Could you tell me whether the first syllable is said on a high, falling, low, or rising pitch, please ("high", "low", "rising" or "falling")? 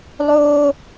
high